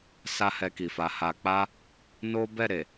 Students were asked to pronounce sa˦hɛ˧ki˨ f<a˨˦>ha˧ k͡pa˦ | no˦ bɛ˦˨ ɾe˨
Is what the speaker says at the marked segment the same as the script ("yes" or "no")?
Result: yes